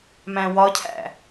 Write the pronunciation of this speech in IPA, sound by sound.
m æ̃ w ɒ cʰ æ̰

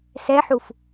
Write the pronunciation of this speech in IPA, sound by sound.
s ɛ ħ u f

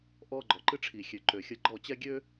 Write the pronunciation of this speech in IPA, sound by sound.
ʔ ɔ˧ ɡ͡ǃ ɔ˨ ǃ ɨ˧ ʈ͡ʂʰ i˨ xʲ ø˨ ǃ ø˨ xʲ ə˧ ɡ͡ǃ ɔ˦˨ t͡ɕ ɛ˦ ɡʲ ø˦

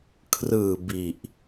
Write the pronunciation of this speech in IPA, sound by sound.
kʰ r ɯː˨˩ b i˨˩ ʔ

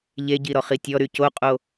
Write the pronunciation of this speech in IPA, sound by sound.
ʎ e ɟ i ɾ ɔ χ i tʲ ɔ ɾ y c o qʼ o

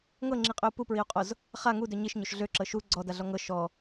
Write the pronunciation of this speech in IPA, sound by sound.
ŋ ɤ ŋ͡ǁ i qʼ ø u̯ p u p ɹ i u̯ qʼ o z | χ a ŋ u d ø ɲ i ʃ ɲ o ʃ ɮ ø ǁ ɤ ʃ u ɡ͡ǀ ɔ d a ɮ ɔ ŋ ɤ ʃ ɔ

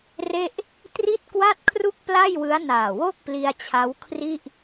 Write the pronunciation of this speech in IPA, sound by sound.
r e˥˩ ʔ | t r i˥˩ t̚ k w a˥˩ t̚ kʰ r u˥˩ k̚ p l a˥˩ j w ɯ˦˥ a̯ n aː˨˩ w o˥˩ k̚ p l i˧ a̯ t͡ɕʰ a˦˥ w kʰ r i˥˩ ʔ

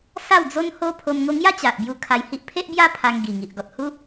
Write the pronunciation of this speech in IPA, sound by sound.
s a˥˧ w d͡z o˦ n h o˦ pʰ o˧ m ŋ o˧ ŋ j a˦ t͡ɕ a˨ ʔ b j u˧ kʰ a˧ j h i˦ ʔ pʰ e˦ ʔ b j a˦ pʰ a˧ ŋ ɡ i˨˩ ŋ i˨ ʔ ɡ ɔ˨ t̚ h u˦

